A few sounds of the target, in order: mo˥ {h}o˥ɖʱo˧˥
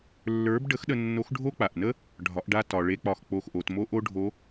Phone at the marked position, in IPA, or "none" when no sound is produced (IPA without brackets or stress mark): ʔ